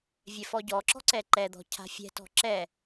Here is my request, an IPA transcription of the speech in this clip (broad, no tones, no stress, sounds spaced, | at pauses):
vʲ ɛ f ɔ ɟ ɔ ǁ ɔ̤ ǀ ɛ ǃ ɛ d̪ ɔ̤ cʰ a̤ fʲ ɛ̤ t ɔ̤ ǁ ɛ